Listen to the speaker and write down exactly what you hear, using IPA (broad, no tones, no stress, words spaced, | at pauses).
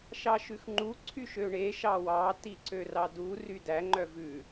ʃɑʃʉxŋ͡ǃu ǀʰyʃøɳe ʃɑwɑ tiǀørɑdu rydæ ŋ͡ǃœvʉ